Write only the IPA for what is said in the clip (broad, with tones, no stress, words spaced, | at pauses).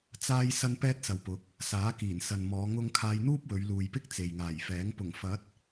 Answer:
t͡saː˥j sɐ˥npɛː˥t̚sɐ˨wpʊ˨˥k̚ | saː˨˥kiː˨˩n sɐ˨nmɔː˨˧ ŋʊ˥ŋ kʰaː˧jn̪uː˥p̚wɵ˨˧ɥ luː˨jpɪ˥k̚ t͡se˨jŋaː˨˩jfɛː˨˥ŋ pʊ˨˩ŋfɐ˨˥t̚